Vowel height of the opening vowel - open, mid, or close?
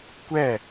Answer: mid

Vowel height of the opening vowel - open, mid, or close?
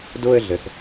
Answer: mid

